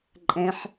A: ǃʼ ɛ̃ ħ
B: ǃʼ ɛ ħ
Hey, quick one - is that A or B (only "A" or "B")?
A